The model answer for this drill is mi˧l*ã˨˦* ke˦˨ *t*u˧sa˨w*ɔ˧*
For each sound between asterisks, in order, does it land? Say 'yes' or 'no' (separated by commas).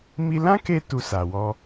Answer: no, yes, yes